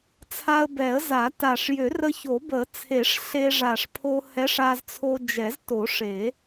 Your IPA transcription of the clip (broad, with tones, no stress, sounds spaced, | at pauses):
t͡sʰ a˧ ə̯ b ɛ˨˩˦ ə̯ z a˨˩˦ t a˨˩ ʂ j ø˨˩˦ r ə˧ ç o˨˩˦ b ə˨˩˦ t͡sʰ e˨˩˦ ʂ ɬ e˧ ʐ a˨˩ ʂ pʰ o˧ h ɛ˧˥ ʂ a˧ z t͡sʰ o˧ d͡ʒ ɛ˨˩˦ z t o˨˩˦ ʂ e˨˩˦